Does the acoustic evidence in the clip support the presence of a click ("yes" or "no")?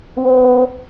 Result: no